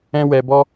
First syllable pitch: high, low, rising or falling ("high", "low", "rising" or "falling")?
high